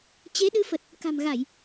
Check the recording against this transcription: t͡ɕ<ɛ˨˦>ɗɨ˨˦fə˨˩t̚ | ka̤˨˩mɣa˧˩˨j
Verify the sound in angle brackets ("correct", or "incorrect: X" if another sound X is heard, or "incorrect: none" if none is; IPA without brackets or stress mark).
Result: incorrect: e˨˦